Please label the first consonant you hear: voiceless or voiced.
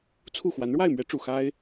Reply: voiceless